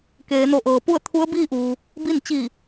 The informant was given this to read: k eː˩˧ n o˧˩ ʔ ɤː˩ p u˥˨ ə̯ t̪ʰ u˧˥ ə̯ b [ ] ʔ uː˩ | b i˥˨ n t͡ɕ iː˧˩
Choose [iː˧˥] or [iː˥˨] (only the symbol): iː˥˨